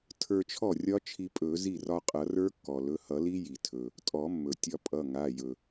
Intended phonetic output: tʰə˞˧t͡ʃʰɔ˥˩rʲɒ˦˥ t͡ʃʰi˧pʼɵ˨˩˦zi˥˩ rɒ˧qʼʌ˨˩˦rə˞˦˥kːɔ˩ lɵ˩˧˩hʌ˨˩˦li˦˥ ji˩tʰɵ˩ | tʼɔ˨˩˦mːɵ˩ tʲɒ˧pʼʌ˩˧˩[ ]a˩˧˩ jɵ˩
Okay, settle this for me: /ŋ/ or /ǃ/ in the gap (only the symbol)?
ŋ